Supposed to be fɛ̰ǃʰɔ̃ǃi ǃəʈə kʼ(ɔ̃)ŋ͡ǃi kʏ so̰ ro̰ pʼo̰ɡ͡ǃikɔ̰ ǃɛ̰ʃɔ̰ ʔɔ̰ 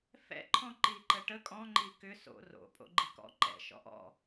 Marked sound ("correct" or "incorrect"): correct